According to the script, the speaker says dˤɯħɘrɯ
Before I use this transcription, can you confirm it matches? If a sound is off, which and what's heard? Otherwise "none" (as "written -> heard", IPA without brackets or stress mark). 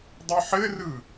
none